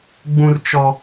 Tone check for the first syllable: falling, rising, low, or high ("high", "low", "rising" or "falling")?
high